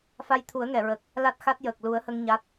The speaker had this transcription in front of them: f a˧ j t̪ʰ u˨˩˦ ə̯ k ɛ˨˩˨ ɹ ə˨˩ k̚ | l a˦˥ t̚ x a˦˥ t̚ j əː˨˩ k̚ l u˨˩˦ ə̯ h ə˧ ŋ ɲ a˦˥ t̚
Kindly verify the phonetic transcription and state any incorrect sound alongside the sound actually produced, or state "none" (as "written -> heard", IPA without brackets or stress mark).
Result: k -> ŋ